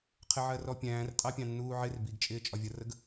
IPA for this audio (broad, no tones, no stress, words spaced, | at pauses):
qʰɪʕɜrɔpʲæ̃ːr tʼɑpʲɑ̃nːuːʕɪr biɡt͡ʃʼɪː t͡ʃʼɒvʲʌrəɡ